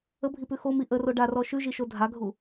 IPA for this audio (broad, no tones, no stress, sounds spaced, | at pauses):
ə bʱ i p ʉ x o m i ʔ ə r o ɖ a r ɔ ʃ ʉ ʒ i ʃ o dʱ a ɡʱ u